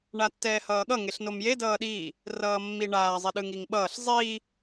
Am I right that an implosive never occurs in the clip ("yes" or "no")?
no